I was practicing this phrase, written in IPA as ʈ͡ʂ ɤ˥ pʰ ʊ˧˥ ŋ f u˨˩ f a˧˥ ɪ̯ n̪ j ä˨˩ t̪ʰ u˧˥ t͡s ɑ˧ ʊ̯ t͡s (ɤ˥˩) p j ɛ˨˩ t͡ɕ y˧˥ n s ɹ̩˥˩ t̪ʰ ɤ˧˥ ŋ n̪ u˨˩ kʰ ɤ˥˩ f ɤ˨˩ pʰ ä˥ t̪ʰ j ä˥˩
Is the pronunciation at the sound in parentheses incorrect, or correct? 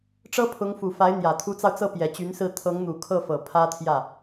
correct